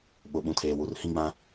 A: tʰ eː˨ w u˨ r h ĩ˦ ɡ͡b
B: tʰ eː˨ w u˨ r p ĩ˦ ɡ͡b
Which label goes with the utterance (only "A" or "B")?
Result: A